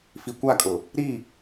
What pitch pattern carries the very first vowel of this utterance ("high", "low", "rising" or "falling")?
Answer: low